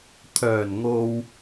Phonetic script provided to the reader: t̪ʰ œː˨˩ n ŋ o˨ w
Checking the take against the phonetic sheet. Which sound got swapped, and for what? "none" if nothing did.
none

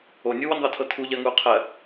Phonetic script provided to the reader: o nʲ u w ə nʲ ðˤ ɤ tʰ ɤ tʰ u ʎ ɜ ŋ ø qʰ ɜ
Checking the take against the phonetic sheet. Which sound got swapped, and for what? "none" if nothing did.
ø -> u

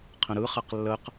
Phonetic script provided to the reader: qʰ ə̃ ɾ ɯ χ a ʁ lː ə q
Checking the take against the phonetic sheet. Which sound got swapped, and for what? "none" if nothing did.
ʁ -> q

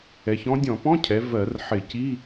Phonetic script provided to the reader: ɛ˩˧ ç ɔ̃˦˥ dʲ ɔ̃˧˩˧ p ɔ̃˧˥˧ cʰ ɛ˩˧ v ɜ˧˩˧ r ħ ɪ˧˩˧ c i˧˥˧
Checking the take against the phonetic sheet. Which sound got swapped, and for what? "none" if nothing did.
none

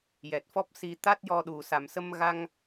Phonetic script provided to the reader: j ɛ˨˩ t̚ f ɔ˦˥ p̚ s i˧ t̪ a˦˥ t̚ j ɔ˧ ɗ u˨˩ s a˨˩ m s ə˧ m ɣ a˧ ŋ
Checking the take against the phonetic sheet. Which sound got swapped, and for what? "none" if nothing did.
none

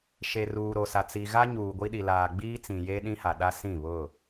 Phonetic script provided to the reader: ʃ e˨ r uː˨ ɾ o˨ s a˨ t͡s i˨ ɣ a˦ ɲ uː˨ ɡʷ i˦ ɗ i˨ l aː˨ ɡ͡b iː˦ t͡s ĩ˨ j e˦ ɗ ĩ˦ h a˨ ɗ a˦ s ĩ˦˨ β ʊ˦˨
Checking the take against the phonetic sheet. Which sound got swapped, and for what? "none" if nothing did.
none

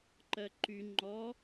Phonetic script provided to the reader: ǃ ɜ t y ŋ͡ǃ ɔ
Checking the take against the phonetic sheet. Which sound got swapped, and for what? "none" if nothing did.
t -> ǃ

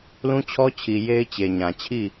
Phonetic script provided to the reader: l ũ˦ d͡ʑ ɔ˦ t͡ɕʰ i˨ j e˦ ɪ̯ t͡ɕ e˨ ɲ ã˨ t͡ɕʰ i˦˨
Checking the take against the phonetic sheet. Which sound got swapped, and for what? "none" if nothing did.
d͡ʑ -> t͡ɕʰ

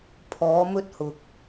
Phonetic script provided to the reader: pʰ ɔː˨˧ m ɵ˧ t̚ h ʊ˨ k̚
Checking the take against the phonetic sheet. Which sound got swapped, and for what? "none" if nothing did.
none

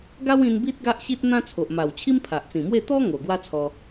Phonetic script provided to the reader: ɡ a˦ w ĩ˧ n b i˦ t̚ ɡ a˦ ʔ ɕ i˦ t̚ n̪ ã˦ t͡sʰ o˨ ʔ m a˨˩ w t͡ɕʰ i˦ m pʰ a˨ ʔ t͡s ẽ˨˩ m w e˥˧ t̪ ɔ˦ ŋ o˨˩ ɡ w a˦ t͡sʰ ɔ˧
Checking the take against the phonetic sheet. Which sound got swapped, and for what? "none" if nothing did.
ẽ˨˩ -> ĩ˨˩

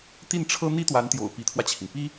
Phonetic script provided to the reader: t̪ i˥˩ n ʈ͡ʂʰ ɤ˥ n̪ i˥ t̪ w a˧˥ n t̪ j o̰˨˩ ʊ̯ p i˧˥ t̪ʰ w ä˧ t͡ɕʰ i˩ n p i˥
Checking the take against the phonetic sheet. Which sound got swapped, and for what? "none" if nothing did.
none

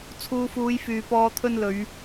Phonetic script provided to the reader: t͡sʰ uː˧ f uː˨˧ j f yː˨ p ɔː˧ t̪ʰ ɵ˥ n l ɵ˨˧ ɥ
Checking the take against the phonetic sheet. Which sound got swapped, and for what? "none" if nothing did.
none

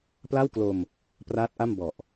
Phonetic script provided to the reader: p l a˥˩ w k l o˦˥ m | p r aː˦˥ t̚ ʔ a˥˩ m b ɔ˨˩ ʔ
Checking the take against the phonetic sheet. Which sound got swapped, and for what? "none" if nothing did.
o˦˥ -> o˧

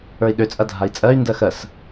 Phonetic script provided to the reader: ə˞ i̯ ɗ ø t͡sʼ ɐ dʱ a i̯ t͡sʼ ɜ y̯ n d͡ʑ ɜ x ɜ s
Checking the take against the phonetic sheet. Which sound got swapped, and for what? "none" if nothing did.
d͡ʑ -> d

